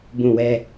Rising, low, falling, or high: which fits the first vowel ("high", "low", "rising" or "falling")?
falling